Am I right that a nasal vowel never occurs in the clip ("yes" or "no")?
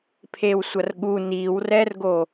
yes